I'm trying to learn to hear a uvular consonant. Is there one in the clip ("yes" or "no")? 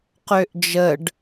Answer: yes